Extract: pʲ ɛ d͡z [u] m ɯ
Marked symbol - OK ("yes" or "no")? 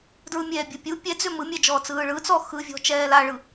no